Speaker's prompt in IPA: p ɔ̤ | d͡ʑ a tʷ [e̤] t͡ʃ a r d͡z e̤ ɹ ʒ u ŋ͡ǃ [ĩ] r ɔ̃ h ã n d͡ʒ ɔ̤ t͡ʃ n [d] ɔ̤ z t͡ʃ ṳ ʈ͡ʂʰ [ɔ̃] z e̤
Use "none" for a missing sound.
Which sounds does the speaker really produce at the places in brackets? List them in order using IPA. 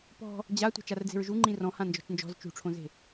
e̤, ĩ, d͡ʒ, õ

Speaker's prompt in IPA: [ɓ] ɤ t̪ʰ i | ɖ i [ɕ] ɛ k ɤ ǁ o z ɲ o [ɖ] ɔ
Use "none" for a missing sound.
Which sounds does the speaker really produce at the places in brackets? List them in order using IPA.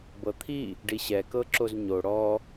b, ɕ, ɽ

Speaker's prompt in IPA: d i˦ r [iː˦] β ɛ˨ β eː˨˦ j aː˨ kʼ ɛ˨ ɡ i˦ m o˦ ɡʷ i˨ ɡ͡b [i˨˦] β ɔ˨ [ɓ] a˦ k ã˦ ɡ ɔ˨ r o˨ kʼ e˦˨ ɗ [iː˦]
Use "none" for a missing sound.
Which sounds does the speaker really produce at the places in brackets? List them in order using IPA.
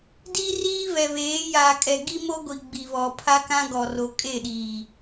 iː˦, i˨, pʰ, iː˨

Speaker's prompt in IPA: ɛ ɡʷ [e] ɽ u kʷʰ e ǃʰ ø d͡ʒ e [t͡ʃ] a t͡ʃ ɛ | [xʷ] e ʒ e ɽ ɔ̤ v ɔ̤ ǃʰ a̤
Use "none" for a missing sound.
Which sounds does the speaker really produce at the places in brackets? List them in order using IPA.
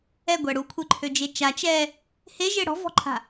ɛ, t͡ʃ, h

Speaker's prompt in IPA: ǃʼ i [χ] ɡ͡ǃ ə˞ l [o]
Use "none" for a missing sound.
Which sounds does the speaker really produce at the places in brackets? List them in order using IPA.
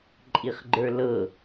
χ, ɤ

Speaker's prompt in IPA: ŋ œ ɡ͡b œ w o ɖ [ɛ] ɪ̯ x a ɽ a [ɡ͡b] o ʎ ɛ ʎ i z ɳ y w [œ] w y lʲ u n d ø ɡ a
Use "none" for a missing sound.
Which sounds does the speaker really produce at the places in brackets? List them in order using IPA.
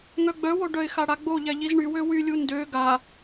œ, ɡ͡b, ø

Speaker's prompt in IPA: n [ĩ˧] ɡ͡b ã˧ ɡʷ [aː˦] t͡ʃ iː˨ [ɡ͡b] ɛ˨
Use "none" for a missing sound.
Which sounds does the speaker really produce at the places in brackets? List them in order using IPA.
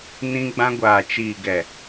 ĩ˧, aː˨, ɡ

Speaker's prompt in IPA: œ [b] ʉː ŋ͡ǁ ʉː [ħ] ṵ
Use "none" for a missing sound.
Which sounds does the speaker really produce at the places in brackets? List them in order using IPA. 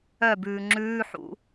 b, ħ

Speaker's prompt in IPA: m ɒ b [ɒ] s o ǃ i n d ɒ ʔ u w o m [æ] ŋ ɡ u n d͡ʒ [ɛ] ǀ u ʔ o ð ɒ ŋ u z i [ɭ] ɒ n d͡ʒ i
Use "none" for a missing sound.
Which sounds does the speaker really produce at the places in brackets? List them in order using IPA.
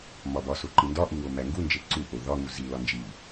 ɒ, æ, e, l

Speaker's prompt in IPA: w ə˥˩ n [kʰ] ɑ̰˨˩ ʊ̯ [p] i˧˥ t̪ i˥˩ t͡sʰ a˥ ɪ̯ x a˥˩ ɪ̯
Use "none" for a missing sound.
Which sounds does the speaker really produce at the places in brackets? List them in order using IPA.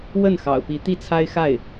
x, p

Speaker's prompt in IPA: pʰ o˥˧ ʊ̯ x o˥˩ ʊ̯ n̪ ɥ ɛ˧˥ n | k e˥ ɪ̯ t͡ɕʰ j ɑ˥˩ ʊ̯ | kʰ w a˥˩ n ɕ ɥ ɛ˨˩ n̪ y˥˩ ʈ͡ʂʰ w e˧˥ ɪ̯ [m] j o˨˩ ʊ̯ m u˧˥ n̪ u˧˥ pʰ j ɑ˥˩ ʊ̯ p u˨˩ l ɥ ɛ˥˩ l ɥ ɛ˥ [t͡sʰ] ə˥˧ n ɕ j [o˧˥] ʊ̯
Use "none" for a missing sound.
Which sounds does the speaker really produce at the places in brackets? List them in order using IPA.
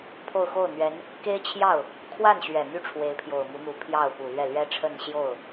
pʰ, ʈ͡ʂʰ, o˥˩

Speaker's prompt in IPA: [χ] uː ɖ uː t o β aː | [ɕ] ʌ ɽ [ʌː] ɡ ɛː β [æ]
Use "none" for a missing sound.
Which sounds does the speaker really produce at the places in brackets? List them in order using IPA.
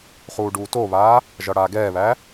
χ, ʒ, aː, æ

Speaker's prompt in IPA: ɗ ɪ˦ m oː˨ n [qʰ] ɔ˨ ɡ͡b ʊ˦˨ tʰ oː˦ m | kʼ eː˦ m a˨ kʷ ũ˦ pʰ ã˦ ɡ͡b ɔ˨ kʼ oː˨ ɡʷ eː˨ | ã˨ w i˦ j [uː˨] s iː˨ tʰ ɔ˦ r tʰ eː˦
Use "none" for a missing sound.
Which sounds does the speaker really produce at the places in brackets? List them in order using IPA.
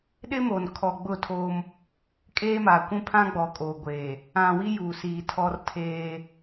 kʰ, uː˨

